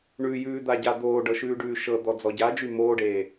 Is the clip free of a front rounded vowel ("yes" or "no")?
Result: no